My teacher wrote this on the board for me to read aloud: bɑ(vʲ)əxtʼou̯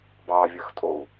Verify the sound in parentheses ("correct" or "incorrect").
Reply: correct